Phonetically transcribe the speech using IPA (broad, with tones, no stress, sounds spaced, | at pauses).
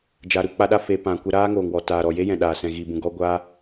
d͡ʒ aː˧ ɾ u˧ k͡p a˦ ɗ a˦ f e˧ p ã˧ kʷ ə˧ ɾ aː˦ ŋ oː˨ ŋ w ɔ˨ t aː˨ ɾ ɔ˨ j e˦ j ɛ̃˨ ɗ aː˨ s ɛ̃˨ ɣ iː˨ b ũ˨ ɡ ɔ˦ ɡʷ a˦